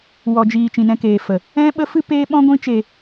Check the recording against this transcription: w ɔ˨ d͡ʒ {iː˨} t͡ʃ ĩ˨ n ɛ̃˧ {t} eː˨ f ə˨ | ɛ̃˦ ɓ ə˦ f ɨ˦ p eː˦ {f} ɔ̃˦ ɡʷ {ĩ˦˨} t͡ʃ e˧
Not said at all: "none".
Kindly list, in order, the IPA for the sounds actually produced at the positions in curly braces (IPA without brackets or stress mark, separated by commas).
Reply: iː˨, k, ɓ, ĩ˦